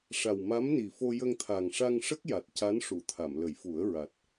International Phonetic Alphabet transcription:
ʂ a˨˩ w m a˧˥ m n i˨˩ f o˧ j ə˧ ŋ t̪ʰ a˨˩ ŋ ʂ a˧ ŋ ʂ ə˦˥ k̚ j a˨˩ t̚ c a˧˥ n ʂ u˨˩˨ t̪ʰ a˨˩˨ m l ə˨˩˦ j f u˨˩˦ ə̯ ɹ a˨˩ t̚

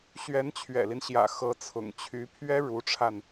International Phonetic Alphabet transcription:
ɕ ɥ ɛ˧˥ n t͡ɕʰ ɥ ɛ̰˨˩ l i˦ n ɕ j ä̰˨˩ x ɤ˧˥ t͡sʰ ʊ̰˨˩ ŋ t͡ɕʰ y˧˥ pʰ ɥ ɛ˥ ɻ u˧˥ ʈ͡ʂʰ a˧ n

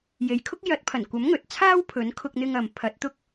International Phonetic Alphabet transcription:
j e˨ j kʰ ʊ˥ k̚ j ɐ˨˥ t̚ pʰ ɐ˨˩ n kʷ ɐ˨˥ m ŋ ɵ˨ t̚ t͡sʰ aː˥ w pʰ ɵ˨˥ n kʰ ʊ˧ k̚ n̪ ɪ˧ ŋ ɐ˨ m pʰ ɐ˨˥ t̚ t̪ ʊ˥ k̚

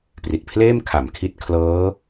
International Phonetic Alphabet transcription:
p r i˨˩ t̚ pʰ l eː˥˩ m kʰ a˨˩ m kʰ i˦˥ t̚ kʰ l ɤː˦˥

